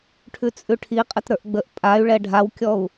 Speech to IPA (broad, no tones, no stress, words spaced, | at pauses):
ʈʰʉt͡sʼʉʈʰiqʼət ɾə˞ʔɡ͡bəʔ pʼay̯ ɭɛɖʱawkʲɔu̯